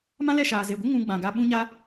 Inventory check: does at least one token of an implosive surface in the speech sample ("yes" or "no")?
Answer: yes